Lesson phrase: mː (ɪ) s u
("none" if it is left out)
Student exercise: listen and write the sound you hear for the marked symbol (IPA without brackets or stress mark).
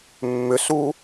ʏ